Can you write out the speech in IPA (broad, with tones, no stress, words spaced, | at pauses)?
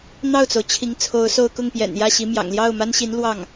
n̪ɑ˥˩ʊ̯t͡so˩ʊ̯ t͡ɕʰi˧˥ŋt͡sʰo˧˥ʊ̯so˥˧ʊ̯ kʊ˥˩ŋpjɛ̰˨˩njä˥˩ ɕi˧˥mjɑ̰˨˩ŋ ljɑ˥˩ʊ̯ma˥nɕi˧˥n lwɑ˥˩ŋ